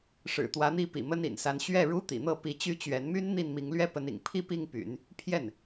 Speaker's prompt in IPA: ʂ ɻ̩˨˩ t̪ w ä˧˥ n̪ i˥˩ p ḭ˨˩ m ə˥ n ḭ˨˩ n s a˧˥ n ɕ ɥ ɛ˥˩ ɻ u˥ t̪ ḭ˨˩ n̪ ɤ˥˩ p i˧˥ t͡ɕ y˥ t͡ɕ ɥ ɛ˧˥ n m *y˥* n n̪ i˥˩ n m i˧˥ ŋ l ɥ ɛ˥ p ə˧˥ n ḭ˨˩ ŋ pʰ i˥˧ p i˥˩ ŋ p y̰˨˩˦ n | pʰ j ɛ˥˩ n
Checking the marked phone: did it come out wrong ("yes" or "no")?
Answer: no